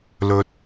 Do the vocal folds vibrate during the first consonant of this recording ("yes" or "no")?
yes